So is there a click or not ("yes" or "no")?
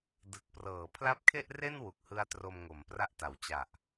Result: no